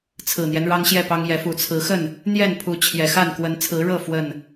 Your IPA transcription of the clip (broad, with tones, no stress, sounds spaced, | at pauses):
t͡sʰ ɹ̩˨˩ n̪ j ɛ˦ n ɻ ɑ˦ ŋ ɕ j ɛ˥˨ p ɑ˦ ŋ j ɛ˨˦ f u˨˩ t͡sʰ ɹ̩˨˦ x ə˥˨ n | n̪ j ɛ˥˨ n pʰ u˨˦ t͡ɕʰ j ɛ˨˩ x a˥˨ n k w ə˨˦ n t͡sʰ ɹ̩˨˦ ɻ ɤ˥˨ f w ə˥˨ n